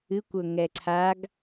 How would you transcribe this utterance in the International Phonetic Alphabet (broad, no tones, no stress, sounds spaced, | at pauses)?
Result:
ɨ kʷ ɵ ŋ ɛ ǀʰ a ɡ